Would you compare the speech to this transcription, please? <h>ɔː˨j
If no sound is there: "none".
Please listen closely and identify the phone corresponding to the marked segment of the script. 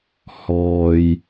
h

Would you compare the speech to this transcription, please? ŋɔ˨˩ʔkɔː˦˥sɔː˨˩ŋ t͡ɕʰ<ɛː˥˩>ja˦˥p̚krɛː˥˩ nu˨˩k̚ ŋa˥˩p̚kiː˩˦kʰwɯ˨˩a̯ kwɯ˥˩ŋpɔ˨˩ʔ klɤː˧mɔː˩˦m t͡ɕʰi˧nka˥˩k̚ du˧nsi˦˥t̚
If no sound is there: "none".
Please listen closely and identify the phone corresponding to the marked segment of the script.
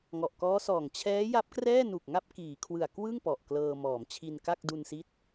ɛː˦˥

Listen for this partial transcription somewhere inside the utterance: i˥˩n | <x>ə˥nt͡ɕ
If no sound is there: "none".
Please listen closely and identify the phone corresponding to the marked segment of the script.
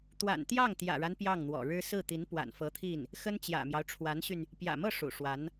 x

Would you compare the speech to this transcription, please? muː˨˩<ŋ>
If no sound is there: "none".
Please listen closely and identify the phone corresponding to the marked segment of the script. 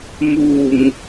ŋ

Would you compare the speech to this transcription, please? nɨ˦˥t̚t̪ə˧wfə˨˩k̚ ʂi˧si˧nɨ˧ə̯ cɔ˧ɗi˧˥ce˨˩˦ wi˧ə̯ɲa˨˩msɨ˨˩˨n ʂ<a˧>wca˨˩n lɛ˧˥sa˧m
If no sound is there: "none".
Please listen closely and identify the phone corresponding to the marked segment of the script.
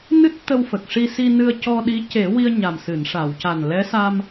a˨˩˨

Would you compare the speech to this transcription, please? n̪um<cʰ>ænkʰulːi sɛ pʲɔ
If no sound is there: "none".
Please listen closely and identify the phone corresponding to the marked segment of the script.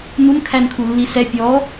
kʰ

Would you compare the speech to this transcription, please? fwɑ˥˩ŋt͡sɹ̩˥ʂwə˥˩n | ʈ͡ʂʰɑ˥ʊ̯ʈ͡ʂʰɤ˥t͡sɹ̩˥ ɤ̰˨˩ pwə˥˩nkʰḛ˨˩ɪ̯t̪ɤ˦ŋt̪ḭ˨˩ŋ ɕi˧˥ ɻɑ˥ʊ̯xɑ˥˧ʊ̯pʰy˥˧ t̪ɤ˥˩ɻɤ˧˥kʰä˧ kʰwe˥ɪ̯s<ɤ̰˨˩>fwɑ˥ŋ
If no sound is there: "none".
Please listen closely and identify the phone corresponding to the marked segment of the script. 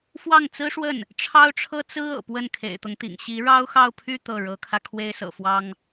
ɤ̰˨˩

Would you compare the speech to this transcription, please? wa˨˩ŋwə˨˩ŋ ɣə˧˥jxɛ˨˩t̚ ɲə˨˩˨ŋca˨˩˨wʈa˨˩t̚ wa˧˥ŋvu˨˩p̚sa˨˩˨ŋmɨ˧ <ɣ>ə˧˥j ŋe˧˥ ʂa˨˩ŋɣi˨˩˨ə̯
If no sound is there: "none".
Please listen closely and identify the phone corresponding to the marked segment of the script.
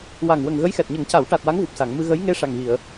ɣ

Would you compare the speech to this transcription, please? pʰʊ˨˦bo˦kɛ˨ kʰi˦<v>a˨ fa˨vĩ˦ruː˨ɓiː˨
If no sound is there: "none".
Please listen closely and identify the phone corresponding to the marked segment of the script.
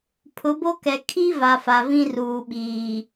v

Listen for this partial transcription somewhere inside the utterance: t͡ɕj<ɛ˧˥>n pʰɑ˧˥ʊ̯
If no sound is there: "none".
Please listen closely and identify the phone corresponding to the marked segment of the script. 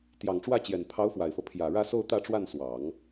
ɛ˨˩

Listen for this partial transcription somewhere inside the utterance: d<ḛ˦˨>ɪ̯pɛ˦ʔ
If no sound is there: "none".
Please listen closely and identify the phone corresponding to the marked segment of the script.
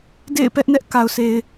ḛ˦˨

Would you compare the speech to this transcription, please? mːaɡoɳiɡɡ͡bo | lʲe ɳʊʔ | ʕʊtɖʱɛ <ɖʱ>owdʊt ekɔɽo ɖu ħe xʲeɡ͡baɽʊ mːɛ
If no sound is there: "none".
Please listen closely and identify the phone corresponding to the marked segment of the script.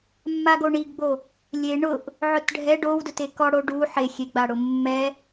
ɖ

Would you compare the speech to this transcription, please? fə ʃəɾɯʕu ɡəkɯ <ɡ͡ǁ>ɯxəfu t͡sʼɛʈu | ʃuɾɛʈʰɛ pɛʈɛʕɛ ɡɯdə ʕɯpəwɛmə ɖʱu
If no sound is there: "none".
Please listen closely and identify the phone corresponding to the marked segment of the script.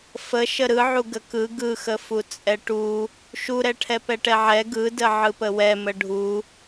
ɡ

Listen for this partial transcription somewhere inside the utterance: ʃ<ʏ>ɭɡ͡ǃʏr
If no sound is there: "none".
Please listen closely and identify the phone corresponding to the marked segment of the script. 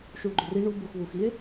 u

